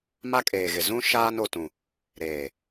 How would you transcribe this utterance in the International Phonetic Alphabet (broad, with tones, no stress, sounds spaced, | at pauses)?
m a˦ kʼ eː˨ ɣ ɪ˨ z ũ˦ ʃ aː˦ n o˨ t ũ˨ | ɾ eː˨